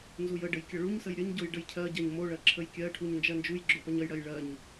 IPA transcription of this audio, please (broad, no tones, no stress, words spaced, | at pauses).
nzujəɖəj kʲʌɭuɲsəj ɾʲəɲɟoj ɖəjcʰɜɟɜɲ moɭɜ ǁʰəjkʲɜʈʰuɲ nd͡ʒɜnd͡ʒujɡ͡ǁo pʌɲəjɽɜj ɭɜɲ